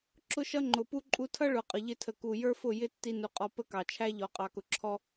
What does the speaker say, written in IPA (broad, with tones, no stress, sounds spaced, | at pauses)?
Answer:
ǁ ʊ˦ ʃ ʌ˦ ŋ͡ǃ ʊ˨ p u˦ ǃʼ u˧ tʰ ʌ˦ ɭ ʊ˨ qʼ ə˨ ʎ ɪ˧ tʰ ə˨ k u˨ j ə˞˦ f ʊ˦˨ j ɪ˦ tː i˧ n u˨ qʼ ɔ˧ p ə˦ k ɑ˨ t͡ʃʰ æ˦ ʎ ɔ˨ qʼ ɑ˨ k ʊ˨ ǁʰ ɔ˧